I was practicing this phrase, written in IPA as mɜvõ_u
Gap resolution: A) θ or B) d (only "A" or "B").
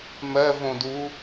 B